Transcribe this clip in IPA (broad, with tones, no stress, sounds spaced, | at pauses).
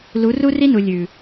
l u˨˦ r u˦ r i˦ n u˨ lʲ ʉ˨